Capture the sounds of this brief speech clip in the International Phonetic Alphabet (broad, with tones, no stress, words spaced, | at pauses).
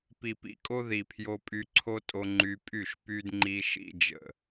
pi˨pḭ˨kʼo˦ ði˨pʰjo˧pʼy˧ ǀʰo˦tʼo˧ ŋ͡ǃy˧pʼy˦˨ʃ py˦d ŋ͡ǃi˦ʃḭ˦d͡ʒə̰˨